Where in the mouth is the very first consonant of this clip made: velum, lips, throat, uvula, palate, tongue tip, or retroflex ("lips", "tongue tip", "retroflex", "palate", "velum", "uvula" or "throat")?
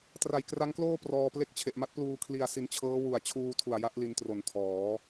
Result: tongue tip